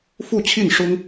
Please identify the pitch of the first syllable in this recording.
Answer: falling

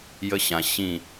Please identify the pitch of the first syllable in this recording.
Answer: high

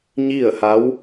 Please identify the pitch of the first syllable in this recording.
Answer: falling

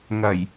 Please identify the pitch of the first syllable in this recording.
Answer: low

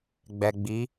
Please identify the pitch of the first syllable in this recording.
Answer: low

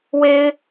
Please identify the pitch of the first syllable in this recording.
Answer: high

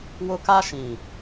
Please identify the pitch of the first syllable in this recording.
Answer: high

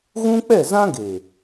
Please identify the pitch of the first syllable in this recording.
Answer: high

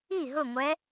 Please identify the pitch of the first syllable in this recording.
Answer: falling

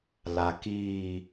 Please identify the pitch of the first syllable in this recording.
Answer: low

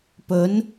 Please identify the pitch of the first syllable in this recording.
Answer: rising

